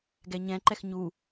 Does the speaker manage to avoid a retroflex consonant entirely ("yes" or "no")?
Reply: yes